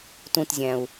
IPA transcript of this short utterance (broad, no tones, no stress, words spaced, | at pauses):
tũtzʲæ̃u̯